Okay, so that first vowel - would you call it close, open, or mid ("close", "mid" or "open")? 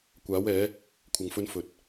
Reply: open